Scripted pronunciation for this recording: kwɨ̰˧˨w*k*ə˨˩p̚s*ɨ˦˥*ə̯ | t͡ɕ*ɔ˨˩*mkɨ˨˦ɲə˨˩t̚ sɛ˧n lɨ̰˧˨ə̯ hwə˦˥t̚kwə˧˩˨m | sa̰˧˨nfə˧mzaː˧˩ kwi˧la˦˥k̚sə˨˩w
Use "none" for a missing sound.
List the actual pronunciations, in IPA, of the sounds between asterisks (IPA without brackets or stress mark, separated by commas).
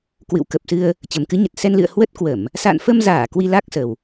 k, ɨ˧, ə˨˩